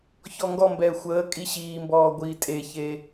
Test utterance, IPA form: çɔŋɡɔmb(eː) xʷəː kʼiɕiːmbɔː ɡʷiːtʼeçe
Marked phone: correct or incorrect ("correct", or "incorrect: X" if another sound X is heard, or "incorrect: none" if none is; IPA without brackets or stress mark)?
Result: incorrect: ɛː